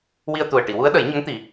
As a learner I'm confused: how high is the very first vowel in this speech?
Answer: high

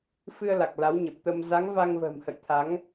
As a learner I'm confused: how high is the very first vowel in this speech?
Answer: high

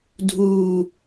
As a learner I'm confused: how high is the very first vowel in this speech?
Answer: high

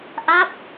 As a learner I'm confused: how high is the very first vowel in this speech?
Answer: low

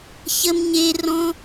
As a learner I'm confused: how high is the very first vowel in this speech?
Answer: mid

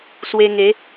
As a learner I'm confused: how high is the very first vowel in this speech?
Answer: mid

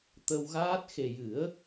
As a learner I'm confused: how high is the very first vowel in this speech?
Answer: mid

